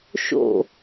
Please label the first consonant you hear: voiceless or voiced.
voiceless